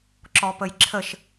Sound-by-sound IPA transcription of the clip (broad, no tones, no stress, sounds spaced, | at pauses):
ǁ ɔ p ə j ǁʰ ə ʃ